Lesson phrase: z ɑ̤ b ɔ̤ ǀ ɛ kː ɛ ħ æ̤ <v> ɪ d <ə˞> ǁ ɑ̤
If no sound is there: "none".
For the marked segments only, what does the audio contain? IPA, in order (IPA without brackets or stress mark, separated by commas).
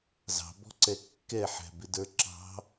b, ə˞